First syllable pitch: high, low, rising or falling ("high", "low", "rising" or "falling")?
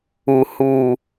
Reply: low